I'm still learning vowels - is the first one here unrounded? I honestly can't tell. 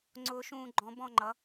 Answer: no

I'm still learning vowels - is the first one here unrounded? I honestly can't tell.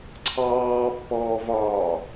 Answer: yes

